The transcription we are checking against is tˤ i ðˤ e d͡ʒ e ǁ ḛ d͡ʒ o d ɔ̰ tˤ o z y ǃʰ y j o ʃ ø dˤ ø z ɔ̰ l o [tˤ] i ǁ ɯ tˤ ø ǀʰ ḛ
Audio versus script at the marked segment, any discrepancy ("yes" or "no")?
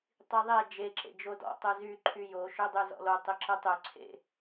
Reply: no